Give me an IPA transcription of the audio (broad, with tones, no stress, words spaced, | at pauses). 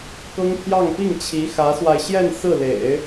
kɤ˥ŋpʰjɑ˥˧ŋ pi˥˩ŋt͡ɕʰi˧˥ xä˧˥swa˧ɪ̯ ɕjɛ˥˧n sɹ̩˥˩lḛ˨˩˦ɪ̯